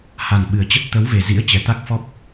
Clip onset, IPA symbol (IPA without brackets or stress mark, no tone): h